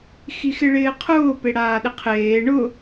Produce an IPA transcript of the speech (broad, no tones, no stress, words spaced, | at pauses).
xixɪɭɪːqʰʊː peɽaːɗɪqʰeː ɳʊ